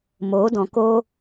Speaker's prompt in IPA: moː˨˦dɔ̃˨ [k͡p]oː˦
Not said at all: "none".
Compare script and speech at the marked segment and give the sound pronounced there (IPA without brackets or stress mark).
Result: k